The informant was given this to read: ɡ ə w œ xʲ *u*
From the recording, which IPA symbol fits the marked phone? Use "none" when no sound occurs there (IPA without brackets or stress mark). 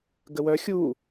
u